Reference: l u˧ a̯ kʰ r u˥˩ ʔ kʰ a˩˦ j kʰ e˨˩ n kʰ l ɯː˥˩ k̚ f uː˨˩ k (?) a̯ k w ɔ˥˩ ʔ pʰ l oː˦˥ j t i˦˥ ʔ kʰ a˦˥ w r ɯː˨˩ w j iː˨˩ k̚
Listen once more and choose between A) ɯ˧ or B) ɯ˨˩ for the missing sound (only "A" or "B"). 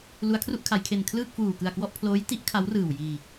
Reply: B